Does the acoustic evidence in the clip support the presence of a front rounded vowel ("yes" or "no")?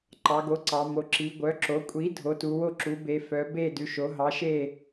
yes